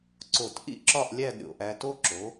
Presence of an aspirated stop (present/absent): absent